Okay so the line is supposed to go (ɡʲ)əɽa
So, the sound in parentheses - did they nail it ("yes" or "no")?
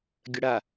yes